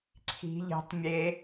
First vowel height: high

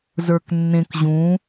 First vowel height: mid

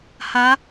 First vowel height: low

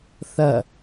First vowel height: low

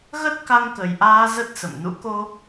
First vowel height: mid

